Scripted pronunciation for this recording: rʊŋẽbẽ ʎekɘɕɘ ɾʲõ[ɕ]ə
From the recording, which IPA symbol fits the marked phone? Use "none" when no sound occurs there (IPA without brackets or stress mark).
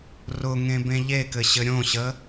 ɕ